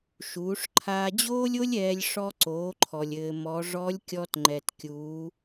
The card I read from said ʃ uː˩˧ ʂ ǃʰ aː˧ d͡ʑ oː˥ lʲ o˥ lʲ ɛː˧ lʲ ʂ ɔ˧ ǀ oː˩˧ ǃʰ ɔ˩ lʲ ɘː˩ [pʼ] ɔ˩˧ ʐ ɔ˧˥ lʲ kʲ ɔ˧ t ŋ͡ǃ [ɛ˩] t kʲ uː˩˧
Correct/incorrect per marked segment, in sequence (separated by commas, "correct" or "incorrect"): incorrect, correct